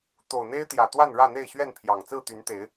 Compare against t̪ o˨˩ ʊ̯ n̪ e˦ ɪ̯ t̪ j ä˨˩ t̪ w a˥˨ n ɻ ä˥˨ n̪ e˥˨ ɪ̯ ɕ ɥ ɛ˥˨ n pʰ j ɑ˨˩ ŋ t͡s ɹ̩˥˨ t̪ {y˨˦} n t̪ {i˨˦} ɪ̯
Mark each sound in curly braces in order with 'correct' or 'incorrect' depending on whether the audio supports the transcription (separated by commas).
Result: correct, incorrect